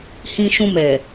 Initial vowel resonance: nasal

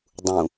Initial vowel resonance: nasal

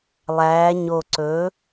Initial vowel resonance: oral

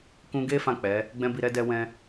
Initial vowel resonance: nasal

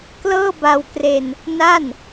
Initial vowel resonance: oral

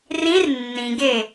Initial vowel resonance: nasal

